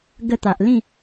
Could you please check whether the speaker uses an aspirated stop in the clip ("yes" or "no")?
no